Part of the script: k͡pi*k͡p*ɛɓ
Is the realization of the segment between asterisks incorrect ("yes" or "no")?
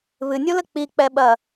no